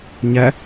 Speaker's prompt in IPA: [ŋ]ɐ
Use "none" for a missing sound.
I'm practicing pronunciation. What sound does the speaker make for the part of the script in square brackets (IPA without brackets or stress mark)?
ɲ